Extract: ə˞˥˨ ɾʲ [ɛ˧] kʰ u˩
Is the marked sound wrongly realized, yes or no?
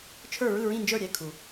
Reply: no